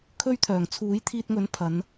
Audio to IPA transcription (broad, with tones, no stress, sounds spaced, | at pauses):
kʰ ɵ˥ ɥ t̪ʰ œː˨˩ ŋ t͡sʰ uː˨˥ j t̪ʰ iː˧ t̚ ŋ ɵ˨˥ n pʰ ɐ˨˧ n